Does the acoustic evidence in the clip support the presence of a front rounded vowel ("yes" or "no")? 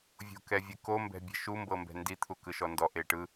no